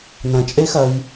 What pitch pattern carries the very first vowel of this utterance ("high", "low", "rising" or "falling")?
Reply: low